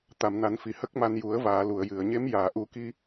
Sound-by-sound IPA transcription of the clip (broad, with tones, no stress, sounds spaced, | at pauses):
t̪ a˨˩˨ m n a˨˩˦ n f i˨˩˨ h ə˦˥ k̚ m a˧ n j u˨˩˦ ə̯ v aː˨˩˨ l u˨˩˨ ə̯ j ɨ˨˩˨ ə̯ ɲ e˧˥ m j aː˨˩˨ ʔ u˨˩˦ k i˧